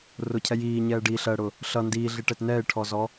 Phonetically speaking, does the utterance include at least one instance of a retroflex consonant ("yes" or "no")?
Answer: yes